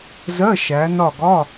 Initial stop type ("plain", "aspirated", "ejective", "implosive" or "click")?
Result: plain